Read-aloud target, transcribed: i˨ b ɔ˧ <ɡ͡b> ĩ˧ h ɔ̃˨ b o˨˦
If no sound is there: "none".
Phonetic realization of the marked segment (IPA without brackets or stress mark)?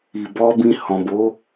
b